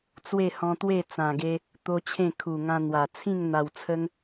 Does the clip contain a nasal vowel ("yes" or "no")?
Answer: yes